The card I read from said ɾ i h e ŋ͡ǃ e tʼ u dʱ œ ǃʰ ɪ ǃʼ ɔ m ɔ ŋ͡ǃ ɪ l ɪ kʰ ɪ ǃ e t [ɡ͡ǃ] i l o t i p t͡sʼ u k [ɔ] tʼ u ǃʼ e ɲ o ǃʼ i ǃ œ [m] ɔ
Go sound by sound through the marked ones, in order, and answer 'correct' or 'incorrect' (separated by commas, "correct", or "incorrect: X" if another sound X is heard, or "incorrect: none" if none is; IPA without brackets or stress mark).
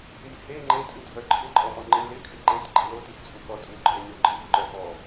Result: correct, correct, incorrect: p